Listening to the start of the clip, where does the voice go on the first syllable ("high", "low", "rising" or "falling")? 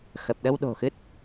low